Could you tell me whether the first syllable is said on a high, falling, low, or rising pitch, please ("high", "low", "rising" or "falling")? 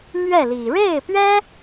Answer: falling